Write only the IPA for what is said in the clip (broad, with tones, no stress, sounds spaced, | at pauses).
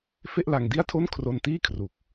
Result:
f e˥˩ ʔ l a˧ ŋ d i˥˩ a̯ tʰ o˥˩ n kʰ r o˧ n t iː˥˩ kʰ r u˨˩ k̚